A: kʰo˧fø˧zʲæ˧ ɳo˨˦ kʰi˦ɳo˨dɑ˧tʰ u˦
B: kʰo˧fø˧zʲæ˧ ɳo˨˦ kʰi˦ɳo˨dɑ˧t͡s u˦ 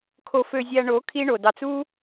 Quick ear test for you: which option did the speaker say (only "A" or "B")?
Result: B